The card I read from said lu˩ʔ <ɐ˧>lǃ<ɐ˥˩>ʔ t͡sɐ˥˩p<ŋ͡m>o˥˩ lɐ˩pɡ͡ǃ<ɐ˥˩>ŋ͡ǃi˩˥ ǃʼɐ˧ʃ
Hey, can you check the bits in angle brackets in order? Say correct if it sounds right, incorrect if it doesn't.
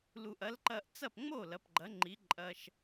incorrect, incorrect, correct, incorrect

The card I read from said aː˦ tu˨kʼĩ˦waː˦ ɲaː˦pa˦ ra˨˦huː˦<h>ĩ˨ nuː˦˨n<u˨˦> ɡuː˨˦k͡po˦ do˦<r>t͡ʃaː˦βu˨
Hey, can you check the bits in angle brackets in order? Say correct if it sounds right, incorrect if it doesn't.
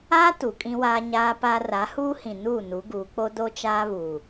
correct, correct, incorrect

